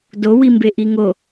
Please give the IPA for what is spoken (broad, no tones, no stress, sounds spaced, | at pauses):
d o w i m b e ʔ i ŋ o